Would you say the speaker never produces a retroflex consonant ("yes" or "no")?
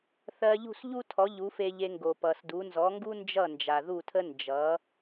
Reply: yes